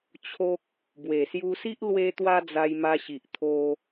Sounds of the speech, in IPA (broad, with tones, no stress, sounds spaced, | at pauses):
t͡ɕʰ o˦ k̚ | b w e˨˩ s j u˧ s i˦ ʔ l w e˦ t̪ w a˦ d͡z a˧ j m a˧ ɕ i˨ ʔ t̪ʰ o˧